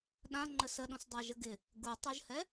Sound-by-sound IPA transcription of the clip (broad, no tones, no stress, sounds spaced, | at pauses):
ɗ ã ŋ͡ǃ ə s ə ɗ õ s dˤ a ʒ ə ɡ ɪ | ɡ u tˤ o ʒ h ɛ